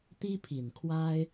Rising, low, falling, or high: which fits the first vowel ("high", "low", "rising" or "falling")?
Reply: high